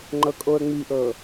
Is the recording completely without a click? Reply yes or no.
no